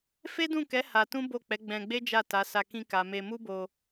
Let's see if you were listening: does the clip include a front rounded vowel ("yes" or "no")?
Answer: no